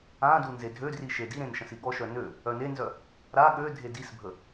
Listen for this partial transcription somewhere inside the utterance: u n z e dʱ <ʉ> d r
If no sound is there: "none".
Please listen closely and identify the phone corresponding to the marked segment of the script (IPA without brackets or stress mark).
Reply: ø